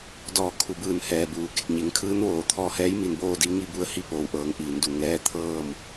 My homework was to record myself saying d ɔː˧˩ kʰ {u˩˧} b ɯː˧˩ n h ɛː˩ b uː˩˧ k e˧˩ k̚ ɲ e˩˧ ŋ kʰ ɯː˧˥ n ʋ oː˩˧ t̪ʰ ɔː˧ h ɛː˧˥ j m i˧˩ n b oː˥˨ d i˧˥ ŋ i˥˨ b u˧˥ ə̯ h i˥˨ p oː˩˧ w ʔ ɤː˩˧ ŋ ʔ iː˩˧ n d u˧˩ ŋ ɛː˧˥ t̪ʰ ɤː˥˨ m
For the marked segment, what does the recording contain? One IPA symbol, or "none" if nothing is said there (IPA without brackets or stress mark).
u˩˧